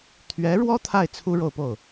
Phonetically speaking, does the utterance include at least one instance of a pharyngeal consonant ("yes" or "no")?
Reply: no